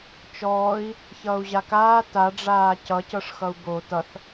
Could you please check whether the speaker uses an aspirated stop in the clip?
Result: no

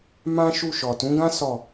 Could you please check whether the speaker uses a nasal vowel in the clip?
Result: yes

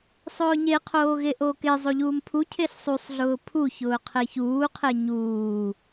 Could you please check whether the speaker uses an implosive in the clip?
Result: no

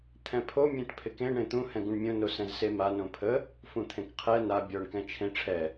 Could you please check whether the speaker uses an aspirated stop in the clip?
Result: yes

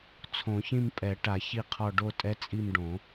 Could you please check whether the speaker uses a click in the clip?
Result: no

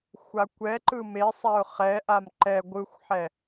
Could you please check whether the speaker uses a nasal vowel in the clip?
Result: no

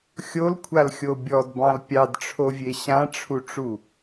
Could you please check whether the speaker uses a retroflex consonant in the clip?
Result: yes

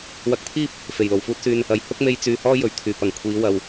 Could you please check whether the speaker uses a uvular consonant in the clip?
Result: no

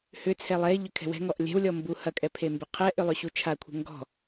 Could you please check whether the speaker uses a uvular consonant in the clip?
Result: yes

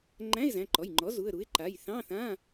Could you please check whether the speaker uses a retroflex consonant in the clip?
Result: no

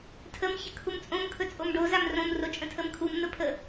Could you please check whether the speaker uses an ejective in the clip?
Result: yes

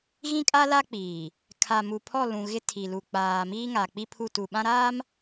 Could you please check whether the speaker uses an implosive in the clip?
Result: yes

